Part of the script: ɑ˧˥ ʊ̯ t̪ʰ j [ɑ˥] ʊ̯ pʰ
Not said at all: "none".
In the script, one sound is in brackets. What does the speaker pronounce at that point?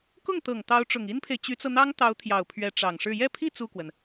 ɑ˨˩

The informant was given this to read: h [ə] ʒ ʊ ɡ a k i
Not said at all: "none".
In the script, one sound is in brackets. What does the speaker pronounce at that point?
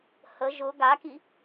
ə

